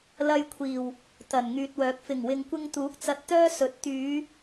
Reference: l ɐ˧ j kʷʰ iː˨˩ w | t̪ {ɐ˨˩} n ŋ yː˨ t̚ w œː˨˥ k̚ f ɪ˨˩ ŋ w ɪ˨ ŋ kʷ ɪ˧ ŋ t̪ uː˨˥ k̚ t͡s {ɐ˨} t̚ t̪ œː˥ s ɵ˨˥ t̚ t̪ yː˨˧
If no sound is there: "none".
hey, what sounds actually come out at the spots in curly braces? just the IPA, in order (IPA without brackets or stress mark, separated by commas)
ɐ˨˩, ɐ˨